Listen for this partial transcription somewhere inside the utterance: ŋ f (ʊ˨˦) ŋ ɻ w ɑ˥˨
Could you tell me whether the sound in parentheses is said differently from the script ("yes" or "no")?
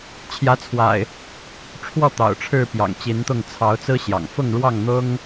yes